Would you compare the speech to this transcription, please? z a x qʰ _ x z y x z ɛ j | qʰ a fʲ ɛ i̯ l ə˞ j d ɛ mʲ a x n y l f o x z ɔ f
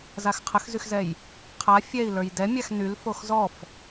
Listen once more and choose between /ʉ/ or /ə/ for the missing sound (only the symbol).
ə